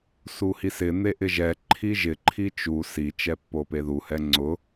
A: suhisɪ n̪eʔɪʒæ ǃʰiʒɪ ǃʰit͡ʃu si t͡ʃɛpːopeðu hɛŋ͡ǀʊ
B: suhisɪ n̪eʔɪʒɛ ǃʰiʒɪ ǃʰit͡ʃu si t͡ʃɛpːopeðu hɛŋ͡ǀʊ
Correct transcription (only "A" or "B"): B